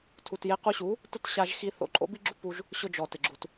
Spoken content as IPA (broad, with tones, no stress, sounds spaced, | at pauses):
tʰ u˨ t j e˧ q u˧ ɕ u˨˦ | t ʊ˦ t ɕ a˧ ʒ x i˧ θ o̰˧ ǃʼ o̰˦ b i˦ ɡ͡ǁ u˦ p u˧ ʒ | ɕ ʊ˦ d͡ʒ ɔ˨ t ɪ˨ ɡ͡ǁ u˨ t